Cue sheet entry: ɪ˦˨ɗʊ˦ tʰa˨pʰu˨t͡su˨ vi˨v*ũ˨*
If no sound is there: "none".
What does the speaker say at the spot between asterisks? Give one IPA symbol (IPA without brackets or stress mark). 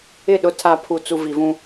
ũ˦